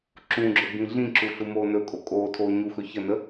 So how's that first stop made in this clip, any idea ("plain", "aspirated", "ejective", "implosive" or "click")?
click